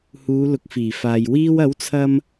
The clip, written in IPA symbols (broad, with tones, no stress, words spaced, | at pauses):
huː˨˧lʊ˨˥k̚fiː˨˩faː˨j wiː˧wɐ˨˥wt͡sʰɐ˧m